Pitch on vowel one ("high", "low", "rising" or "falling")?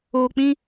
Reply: low